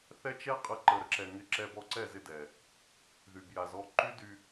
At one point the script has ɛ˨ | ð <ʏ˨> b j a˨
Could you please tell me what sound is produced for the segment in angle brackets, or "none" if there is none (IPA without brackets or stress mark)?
y˨